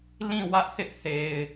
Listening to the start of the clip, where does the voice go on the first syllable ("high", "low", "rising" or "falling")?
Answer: falling